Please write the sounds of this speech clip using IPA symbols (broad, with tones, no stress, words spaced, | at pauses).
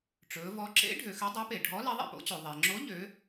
ʈ͡ʂɵː˩˧vɔ˨˥ ǁḛ˨˥ ɖʱø˩˧xø˨˥ dˤæ˨˥pe˩ ɖʱɔ˨˥ lɛ˨˥ðˤḛ˩po̰˨˥t͡ɕo˩ ðˤɛ˩ŋ͡ǁo˨˥ ʎø˩˧